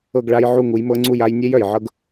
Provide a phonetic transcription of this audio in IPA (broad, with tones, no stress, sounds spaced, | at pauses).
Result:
ɤ˥˧ ɡ ɭ a˦˥ j ʕ u˥˧ ŋ u˨˥ j m ɤ˦˥ ŋ͡ǀ u˥˧ j a˦˥ j nʲ e˦˥ j œ˨ j ʕ ɤ˦˥ ɡ